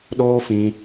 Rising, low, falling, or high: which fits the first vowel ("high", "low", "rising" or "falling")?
high